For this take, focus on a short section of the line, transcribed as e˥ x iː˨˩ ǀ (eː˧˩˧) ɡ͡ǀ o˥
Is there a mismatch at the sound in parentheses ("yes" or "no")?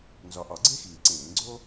yes